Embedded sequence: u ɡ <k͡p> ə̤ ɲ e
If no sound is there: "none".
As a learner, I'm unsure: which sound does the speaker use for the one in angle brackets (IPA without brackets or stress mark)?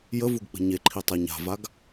k͡p